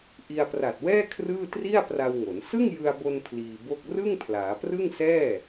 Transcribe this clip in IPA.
ʔ i˧ a̯ p r a˨˩ t̚ w ɛː˥˩ kʰ r ɯː˥˩ t r i˥˩ a̯ p r a˧ w ŋ o˩˦ n s ɯ˥˩ ŋ j ɯ˧ a̯ b o˧ n pʰ l iː˧ b o˥˩ k̚ r ɯ˥˩ ŋ pʰ l aː˩˦ p r ɯ˥˩ ŋ s ɛː˥˩

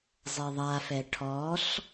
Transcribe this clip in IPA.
zˤ ɛ ðˤ a f ɛ ʈʰ ɔ ɬ

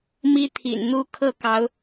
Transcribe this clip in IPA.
m i˦ t̪ʰ ḭ˨˩ n n̪ u˦ kʰ ɤ˥˨ k ɑ˨˦ ʊ̯

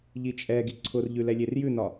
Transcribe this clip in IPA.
ʎ i t͡ʃʼ ɛ ɡ i ǀʰ ʊ r ʎ ʉ l ɛ lʲ e r j ʉ n ɒ

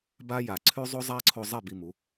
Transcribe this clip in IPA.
b a˦ j a˨ ǀʰ ʉ˦ zˤ o˦ zˤ a˦ ǀʰ o˧ zˤ e˦˨ b i˧ m u˨˦

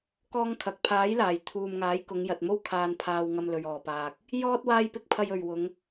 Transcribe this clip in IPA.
k ɔː˥ ŋ kʰ ɐ˨˥ k̚ pʰ aː˨˥ j l aː˨˩ j t̪ʰ uː˨ m ŋ aː˨˥ j k ʊ˨˧ ŋ j ɐ˨ t̚ m o˥ w kʰ aː˧ n pʰ aː˧ w ŋ ɐ˧ m l ɵ˨ ɥ ɔː˨˩ p aː˨ k̚ | j ɔː˥ t̚ w aː˥ j p ɪ˥ k̚ pʰ ɐ˧ j ɵ˨ ɥ w ʊ˨˧ ŋ

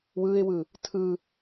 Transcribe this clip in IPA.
w ɯ ɪ̯ w ɯ | tʰ ɯ

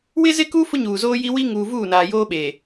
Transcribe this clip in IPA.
w ɪ˦ z ɪ˦ k u˦ f ʊ˦ ɲ uː˨ z oː˦ j i˦ w i˦ ŋ uː˨ v uː˦˨ n aː˨ j oː˦ ɓ e˨

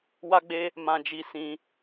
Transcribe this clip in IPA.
w a˦ ɡ͡b e˦ | m ã˧ d͡ʒ i˧ s ĩ˦

